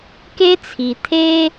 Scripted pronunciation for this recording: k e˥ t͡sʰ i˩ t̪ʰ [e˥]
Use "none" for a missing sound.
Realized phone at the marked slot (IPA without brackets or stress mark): e˥